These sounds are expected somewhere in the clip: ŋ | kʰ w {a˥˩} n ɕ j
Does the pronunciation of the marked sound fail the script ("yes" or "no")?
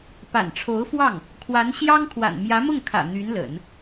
yes